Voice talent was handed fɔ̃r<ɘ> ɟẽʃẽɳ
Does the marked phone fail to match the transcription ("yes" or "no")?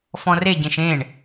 yes